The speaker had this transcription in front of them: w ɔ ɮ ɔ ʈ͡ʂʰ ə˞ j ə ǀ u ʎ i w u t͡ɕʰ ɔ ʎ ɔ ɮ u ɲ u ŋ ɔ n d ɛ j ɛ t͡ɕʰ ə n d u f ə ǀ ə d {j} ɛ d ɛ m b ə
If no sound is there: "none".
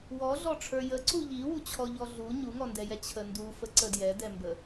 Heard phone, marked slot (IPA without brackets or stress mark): j